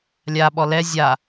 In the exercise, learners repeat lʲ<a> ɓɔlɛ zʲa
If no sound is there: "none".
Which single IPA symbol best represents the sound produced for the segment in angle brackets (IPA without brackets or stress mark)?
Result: a